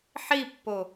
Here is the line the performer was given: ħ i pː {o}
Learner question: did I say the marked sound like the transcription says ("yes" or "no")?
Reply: yes